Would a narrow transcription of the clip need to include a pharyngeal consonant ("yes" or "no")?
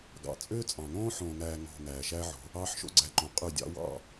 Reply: yes